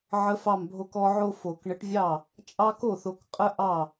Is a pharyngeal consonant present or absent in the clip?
present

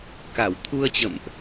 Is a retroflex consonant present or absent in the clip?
absent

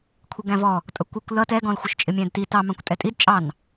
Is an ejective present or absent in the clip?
present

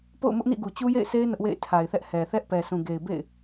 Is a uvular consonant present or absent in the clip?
absent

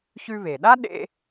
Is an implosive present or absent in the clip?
present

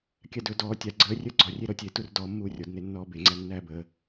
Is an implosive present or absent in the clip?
absent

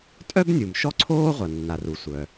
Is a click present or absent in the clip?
present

